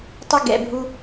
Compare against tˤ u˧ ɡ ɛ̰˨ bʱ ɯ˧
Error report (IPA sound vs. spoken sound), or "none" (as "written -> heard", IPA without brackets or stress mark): ɯ˧ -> u˧